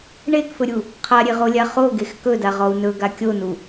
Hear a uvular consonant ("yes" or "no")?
yes